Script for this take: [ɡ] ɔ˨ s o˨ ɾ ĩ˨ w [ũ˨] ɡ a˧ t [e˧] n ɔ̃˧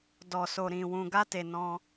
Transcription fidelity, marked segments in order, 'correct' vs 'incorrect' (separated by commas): incorrect, correct, incorrect